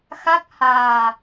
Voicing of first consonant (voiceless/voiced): voiceless